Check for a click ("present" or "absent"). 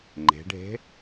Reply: present